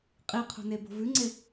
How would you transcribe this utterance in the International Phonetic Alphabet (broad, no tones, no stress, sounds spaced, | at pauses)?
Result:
qʼ i qʰ o̤ n e b o̤ v ʉ ŋ͡ǀ e